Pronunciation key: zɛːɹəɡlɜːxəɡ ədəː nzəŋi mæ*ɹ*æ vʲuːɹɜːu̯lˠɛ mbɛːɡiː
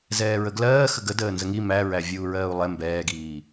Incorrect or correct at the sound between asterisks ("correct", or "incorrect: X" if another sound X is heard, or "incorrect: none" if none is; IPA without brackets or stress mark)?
correct